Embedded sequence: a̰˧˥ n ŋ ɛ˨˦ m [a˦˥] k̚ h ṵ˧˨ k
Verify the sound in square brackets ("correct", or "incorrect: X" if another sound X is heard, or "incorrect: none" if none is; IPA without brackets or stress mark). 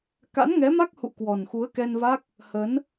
correct